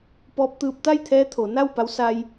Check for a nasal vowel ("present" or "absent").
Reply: absent